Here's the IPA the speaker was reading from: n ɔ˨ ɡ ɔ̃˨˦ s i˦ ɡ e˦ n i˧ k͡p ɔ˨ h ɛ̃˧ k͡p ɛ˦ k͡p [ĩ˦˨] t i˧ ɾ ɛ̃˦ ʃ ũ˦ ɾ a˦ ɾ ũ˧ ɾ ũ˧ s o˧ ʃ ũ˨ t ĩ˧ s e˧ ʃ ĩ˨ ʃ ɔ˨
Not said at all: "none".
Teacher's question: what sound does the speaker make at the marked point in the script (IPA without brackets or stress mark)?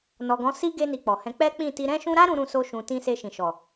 ĩ˦˨